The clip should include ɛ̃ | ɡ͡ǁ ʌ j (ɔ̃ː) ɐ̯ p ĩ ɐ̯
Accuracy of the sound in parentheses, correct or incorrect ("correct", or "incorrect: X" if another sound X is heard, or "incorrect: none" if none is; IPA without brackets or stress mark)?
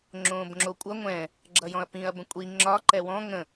incorrect: ɔ̃